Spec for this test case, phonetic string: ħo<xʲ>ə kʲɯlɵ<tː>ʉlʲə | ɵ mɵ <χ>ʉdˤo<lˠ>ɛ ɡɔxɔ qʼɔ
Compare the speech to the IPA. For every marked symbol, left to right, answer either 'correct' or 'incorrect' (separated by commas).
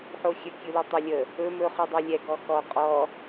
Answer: correct, incorrect, correct, incorrect